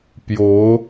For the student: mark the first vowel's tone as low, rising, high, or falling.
rising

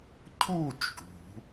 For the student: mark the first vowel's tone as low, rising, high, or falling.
falling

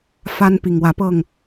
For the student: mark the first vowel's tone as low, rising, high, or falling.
high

